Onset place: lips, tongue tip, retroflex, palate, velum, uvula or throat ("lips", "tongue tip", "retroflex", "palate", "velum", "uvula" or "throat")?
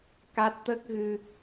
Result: velum